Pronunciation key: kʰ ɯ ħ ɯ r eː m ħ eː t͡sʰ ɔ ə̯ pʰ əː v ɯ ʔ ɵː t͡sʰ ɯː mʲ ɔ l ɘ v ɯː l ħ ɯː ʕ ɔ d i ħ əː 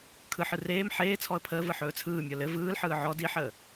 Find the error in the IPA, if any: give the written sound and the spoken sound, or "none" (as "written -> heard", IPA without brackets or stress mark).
ʔ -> ħ